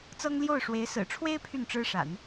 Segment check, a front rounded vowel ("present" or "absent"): present